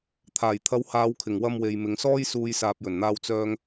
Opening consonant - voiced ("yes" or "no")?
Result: no